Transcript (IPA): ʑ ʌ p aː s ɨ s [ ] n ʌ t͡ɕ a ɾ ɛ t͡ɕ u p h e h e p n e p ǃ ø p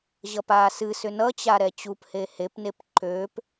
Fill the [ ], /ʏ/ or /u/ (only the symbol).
ʏ